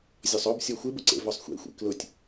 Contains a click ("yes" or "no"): yes